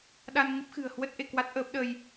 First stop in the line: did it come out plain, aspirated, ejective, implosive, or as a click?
implosive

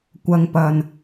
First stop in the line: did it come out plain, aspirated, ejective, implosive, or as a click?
plain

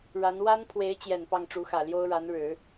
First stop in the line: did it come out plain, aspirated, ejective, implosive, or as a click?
aspirated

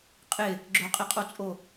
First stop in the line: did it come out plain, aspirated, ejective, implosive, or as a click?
ejective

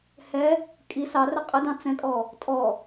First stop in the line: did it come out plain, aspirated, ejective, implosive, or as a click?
ejective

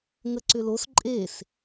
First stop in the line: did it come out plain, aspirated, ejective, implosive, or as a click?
click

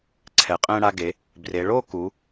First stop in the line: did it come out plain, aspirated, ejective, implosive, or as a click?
click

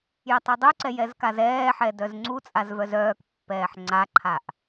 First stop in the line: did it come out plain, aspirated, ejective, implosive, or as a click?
plain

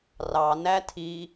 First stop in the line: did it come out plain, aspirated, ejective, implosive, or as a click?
aspirated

